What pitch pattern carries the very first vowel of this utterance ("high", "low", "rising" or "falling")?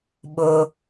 low